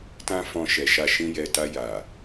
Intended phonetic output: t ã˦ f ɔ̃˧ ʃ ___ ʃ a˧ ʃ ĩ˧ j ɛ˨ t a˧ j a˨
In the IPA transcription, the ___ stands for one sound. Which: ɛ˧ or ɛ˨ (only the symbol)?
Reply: ɛ˨